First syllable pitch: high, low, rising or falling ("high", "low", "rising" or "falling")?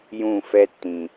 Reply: falling